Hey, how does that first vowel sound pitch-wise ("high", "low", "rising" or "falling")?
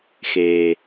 low